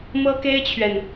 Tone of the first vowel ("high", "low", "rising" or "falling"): high